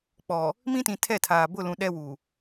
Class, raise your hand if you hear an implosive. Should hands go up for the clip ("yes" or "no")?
yes